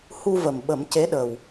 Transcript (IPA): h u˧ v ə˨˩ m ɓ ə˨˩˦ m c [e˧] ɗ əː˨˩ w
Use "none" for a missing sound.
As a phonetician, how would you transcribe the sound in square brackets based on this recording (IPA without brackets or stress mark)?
e˧˥